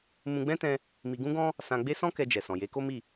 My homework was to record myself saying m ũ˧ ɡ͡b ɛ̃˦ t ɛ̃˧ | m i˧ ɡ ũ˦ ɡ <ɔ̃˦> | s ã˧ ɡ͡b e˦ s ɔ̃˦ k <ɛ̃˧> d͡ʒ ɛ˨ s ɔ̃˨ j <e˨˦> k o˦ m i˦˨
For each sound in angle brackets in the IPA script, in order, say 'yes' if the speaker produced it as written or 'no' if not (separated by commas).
yes, no, yes